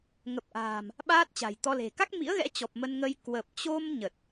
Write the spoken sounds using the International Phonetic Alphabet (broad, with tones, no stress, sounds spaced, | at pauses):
ŋ ə˨˩ p̚ ʔ a̤ː˨˩ m | ɓ aː˦˥ t̚ t͡ɕ a̤˨˩ j t̪ ɔ˧ l e̤˨˩ k a˦˥ k̚ m ḭ˧˥ ə̯ ɣ ɛ̰˧˥ t͡ɕ ɔ˨˩ p̚ m ə˧ n ŋ ə˧ j k w ə˨˩ p̚ t͡ɕ o˧ m ɲ ə˨˩ t̚